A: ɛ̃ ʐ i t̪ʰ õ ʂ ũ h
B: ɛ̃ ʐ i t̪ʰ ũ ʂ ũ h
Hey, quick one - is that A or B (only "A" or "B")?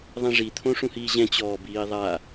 A